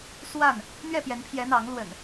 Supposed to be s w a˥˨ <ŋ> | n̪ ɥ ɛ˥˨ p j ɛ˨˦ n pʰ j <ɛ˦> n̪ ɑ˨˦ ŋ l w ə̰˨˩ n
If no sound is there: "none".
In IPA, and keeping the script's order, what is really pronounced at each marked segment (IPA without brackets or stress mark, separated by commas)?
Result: n, ɛ˨˦